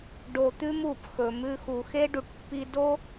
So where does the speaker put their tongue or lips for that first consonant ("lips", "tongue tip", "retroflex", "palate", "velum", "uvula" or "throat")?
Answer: retroflex